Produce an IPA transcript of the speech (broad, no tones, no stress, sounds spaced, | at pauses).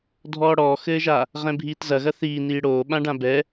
dʱ ɔː ɽ ɔː x ɘː ʒ a | ʁ ɛ̃ bʱ iː t z ɐ ɣ ɐ θ iː n iː ɽ oː ɓ ã ɖ ã b ɛ